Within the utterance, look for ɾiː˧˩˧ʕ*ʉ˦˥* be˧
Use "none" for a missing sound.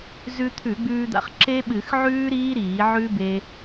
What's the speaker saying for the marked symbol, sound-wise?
ʉ˦˥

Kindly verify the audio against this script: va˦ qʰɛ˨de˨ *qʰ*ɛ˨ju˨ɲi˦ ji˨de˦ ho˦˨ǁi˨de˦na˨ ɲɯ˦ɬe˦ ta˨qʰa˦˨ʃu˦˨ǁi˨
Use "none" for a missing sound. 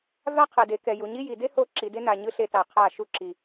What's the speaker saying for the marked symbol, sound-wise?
k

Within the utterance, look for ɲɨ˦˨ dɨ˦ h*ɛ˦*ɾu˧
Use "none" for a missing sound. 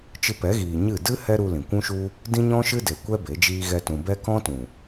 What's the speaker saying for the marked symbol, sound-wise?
ɛ˦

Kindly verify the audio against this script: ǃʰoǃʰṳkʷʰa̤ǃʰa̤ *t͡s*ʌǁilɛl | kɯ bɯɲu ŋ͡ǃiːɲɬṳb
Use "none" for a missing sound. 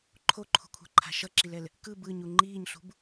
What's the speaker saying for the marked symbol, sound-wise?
ʃ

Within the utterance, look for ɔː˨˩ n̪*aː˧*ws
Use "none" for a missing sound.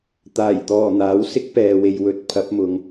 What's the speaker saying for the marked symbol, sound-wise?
aː˨˥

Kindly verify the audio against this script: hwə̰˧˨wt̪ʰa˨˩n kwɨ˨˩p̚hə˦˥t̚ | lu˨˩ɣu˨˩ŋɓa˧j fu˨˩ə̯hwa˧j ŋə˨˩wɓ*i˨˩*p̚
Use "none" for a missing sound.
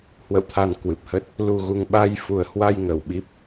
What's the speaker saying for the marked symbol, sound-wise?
i˦˥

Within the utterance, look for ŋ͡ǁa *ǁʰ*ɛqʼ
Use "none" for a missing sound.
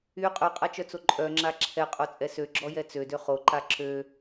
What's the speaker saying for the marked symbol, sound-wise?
ǁʰ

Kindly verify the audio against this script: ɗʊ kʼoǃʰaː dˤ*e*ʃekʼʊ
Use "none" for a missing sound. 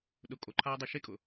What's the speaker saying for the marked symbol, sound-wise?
e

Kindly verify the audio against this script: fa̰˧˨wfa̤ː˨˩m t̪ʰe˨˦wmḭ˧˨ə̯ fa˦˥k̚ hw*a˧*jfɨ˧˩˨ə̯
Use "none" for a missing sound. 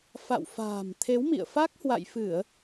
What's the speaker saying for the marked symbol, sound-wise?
a̰˧˨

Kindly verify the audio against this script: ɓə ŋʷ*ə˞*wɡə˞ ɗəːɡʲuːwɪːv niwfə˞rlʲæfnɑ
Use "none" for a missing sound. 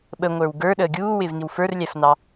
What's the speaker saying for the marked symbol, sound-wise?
ə˞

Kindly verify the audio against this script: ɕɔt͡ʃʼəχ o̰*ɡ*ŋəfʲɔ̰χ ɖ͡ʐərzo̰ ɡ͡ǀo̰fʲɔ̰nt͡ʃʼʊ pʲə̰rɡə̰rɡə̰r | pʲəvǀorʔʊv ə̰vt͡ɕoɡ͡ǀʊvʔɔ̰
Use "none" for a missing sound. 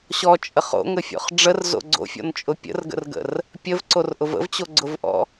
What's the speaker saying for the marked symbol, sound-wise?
none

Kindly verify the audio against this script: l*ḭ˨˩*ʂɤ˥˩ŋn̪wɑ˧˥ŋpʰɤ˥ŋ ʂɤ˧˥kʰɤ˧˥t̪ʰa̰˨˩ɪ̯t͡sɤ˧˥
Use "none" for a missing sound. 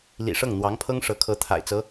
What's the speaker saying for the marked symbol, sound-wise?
ḭ˨˩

